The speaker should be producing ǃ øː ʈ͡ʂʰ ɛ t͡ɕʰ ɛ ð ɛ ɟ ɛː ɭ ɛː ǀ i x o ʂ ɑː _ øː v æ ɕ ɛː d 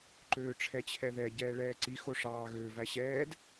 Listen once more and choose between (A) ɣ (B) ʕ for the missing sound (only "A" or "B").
A